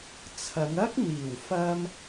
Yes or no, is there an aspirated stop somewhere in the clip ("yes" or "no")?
yes